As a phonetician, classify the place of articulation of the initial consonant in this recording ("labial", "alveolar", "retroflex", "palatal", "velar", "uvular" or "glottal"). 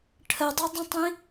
retroflex